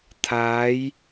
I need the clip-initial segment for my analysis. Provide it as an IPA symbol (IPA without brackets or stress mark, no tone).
t̪ʰ